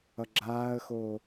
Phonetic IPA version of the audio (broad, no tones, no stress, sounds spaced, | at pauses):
ʌ ɡ͡ǁ aː ə̯ x oː